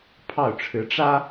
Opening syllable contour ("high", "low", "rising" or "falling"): falling